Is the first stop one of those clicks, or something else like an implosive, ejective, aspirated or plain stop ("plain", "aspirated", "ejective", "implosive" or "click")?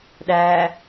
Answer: implosive